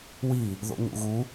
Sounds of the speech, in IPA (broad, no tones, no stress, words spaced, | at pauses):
wi | ðo̰ɲṵɣu